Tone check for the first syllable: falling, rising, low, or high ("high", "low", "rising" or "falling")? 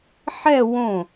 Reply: falling